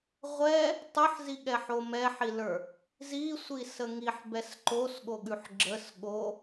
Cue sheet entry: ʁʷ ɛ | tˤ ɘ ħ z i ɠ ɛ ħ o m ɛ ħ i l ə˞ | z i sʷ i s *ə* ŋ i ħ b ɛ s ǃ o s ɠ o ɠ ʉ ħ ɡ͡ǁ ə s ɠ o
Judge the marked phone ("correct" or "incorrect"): correct